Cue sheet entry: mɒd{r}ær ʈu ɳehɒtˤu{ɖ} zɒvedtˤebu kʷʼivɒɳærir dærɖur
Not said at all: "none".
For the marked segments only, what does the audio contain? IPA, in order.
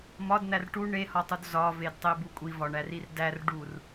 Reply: n̪, d

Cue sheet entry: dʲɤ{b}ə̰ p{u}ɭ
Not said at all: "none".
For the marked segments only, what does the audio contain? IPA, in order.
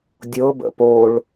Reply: b, o

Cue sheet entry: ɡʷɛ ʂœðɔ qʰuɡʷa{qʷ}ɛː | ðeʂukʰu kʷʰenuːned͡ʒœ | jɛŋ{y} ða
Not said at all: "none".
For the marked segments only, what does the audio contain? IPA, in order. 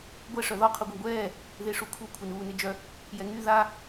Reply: ɡʷ, y

